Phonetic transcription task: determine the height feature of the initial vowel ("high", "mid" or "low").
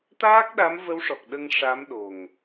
low